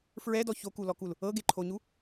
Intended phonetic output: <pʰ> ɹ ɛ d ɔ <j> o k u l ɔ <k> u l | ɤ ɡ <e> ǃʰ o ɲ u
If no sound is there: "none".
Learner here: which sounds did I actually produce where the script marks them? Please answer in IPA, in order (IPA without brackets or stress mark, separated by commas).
f, ç, k, e